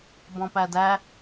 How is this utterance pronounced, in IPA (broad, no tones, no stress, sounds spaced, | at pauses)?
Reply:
b ɔ̃ p æ d æ